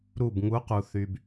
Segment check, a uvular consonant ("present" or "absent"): present